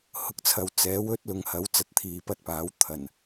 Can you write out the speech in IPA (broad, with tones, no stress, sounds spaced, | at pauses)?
h ʊ˨ k̚ t͡sʰ ɐ˨ w t͡s ɛː˨˥ w ɵ˥ t̚ l ʊ˨˧ ŋ h ɐ˨˥ w t͡s ɐ˨˥ t̚ t̪ʰ iː˨ p ɐ˧ t̚ p aː˨˥ w t̪ʰ ɐ˨˩ n